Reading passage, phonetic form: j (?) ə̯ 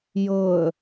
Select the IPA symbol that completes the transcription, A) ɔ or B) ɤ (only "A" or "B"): B